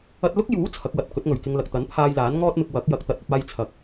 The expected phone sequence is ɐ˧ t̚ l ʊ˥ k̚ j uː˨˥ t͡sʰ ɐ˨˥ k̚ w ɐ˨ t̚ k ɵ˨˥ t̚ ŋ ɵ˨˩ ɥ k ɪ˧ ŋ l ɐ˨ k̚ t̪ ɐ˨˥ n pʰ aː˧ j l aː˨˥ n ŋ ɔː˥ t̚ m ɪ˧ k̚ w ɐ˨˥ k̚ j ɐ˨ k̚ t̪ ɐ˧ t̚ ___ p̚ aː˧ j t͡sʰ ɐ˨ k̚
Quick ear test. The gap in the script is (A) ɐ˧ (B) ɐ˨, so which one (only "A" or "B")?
A